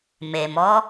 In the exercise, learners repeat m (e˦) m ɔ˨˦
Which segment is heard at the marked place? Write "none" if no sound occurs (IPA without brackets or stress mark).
e˨